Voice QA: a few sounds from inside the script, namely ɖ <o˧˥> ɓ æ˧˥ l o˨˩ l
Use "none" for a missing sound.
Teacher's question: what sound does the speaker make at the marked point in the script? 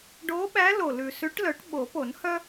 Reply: o˧˥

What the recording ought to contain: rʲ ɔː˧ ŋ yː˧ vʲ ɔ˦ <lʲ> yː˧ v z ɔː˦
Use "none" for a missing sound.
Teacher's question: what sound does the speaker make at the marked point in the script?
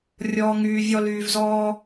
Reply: l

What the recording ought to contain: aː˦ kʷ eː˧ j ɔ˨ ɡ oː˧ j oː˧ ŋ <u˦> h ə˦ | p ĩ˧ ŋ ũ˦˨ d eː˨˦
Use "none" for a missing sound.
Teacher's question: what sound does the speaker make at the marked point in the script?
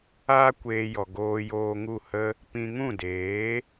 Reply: u˦˨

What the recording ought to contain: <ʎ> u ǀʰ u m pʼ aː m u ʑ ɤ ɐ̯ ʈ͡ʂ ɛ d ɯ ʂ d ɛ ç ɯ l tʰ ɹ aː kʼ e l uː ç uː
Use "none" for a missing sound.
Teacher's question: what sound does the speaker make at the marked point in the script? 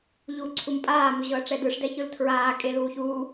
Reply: ʎ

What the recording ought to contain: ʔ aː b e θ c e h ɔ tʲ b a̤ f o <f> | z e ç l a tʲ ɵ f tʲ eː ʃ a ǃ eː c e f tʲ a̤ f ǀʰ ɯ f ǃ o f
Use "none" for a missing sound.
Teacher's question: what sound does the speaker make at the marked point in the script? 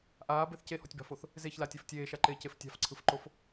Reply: θ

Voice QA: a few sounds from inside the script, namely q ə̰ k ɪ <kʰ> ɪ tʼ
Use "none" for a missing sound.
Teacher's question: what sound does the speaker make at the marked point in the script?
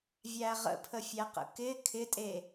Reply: kʰ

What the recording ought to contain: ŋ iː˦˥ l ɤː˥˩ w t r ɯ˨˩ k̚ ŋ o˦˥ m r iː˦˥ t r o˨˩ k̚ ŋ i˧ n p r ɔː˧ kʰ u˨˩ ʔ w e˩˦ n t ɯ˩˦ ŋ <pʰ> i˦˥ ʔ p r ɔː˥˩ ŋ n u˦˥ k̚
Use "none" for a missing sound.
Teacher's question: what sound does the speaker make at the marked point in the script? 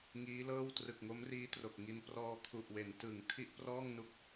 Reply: tʰ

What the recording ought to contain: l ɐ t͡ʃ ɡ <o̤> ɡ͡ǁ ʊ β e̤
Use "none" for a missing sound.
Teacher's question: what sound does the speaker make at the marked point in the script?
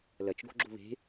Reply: o̤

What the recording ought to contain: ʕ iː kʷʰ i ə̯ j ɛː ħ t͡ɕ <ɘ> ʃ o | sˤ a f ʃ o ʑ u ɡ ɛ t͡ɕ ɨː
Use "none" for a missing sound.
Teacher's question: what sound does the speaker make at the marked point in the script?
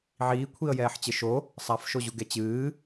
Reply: ɘ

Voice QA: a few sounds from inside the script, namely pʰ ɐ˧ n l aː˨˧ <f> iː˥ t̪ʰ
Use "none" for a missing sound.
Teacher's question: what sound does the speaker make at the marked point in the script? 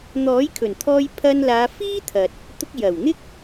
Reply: f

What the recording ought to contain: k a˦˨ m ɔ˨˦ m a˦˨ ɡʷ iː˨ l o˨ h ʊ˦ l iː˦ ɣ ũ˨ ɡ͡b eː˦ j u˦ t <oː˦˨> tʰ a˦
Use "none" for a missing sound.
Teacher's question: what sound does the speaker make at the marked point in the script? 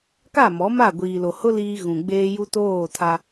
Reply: oː˦˨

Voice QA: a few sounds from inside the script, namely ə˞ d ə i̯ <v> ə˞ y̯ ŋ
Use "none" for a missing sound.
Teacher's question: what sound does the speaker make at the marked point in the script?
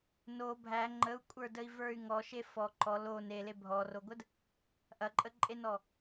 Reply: v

